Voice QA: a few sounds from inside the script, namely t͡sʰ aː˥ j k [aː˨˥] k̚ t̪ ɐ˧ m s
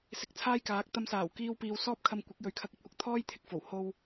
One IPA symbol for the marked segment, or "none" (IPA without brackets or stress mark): aː˨˥